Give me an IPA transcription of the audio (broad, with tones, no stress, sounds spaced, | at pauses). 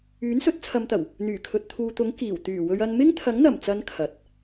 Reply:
yː˨˥ n s ɵ˨˥ t̚ t͡sʰ ɐ˨˧ m t̪ ɐ˨˩ w | n̪ yː˨˩ kʰ ɵ˨ t̚ t̪ʰ uː˨ t̪ ʊ˨˥ ŋ k iː˨˩ w t̪ yː˨˩ w ɵ˧ ɥ ɐ˧ n m ɪ˥ ŋ t̪ʰ ɐ˨˥ ŋ n̪ ɐ˨˩ m t͡s ɐ˨˧ n kʰ ɐ˨ t̚